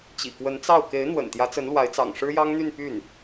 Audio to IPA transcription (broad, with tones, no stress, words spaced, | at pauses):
t͡ɕḭ˨˩kwə˧˥nt͡sɑ˥˩ʊ̯ ke˧˥ɪ̯n̪wə̰˨˩n t̪jä˧˥t͡sə˧˥nlwa˧˥ɪ̯t͡sɑ̰˨˩ŋ ʂɻ̩˥jɑ˥ŋ n̪y˥˧n py˥˩n